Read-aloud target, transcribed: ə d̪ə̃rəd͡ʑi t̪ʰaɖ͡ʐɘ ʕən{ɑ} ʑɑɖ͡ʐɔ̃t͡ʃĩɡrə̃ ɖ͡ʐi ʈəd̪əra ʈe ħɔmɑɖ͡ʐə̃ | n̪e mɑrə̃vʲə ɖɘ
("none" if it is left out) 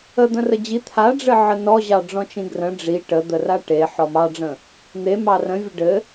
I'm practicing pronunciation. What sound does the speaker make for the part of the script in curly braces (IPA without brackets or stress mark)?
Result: ɔ